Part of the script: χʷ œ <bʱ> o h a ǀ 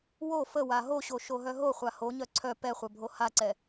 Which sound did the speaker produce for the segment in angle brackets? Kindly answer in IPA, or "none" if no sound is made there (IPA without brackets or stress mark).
bʱ